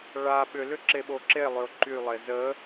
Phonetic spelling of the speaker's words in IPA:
ɭa ɓʏlʏ ǁeɓoǁe lˠʏʊ̯ǃylˠe zə

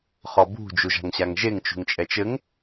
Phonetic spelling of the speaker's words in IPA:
χɔbṳ d͡ʒuʒa̤ŋɕaŋʒeŋ t͡ʃṳŋt͡ʃʼɛt͡ʃɘŋ

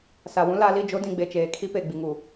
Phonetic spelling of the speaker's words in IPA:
sa˨wũ˦ la˨˦li˦˨ d͡ʒo˦dĩ˨ɡ͡be˨t͡ʃeː˨ kʰi˦pe˨ ɡ͡bi˨ŋu˨

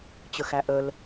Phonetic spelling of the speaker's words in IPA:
t͡ɕəxæʔəl

